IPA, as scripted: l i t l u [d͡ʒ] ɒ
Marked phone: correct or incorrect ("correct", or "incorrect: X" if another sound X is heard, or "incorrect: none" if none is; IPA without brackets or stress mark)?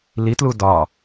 incorrect: d